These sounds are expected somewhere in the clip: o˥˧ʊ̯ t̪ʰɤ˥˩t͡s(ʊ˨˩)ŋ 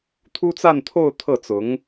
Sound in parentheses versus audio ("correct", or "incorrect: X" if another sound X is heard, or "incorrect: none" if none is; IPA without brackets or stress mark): incorrect: ʊ˧˥